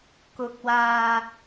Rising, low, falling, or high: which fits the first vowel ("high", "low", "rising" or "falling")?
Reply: rising